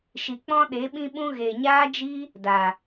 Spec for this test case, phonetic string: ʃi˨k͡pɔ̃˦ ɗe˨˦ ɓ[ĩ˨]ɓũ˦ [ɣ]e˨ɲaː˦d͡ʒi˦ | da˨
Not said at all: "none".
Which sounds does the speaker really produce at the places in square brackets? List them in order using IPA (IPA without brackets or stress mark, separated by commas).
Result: ĩ˦, ɣ